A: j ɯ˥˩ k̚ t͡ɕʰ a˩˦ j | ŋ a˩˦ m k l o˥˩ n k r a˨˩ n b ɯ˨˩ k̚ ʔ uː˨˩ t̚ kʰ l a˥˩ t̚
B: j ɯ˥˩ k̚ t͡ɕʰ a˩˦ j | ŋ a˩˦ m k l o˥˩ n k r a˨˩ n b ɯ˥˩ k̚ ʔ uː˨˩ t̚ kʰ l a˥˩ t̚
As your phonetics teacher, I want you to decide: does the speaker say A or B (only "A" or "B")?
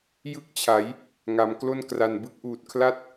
B